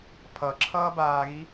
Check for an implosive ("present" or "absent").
absent